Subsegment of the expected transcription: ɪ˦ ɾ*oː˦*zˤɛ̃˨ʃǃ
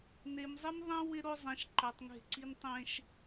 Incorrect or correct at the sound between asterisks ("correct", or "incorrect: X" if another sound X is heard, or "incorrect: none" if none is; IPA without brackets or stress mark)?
incorrect: o˦